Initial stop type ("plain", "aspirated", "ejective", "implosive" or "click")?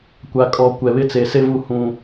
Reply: plain